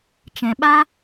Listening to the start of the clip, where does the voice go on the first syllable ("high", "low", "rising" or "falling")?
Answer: low